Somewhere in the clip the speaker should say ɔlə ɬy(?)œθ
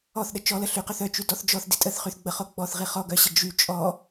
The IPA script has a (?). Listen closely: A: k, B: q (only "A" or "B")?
B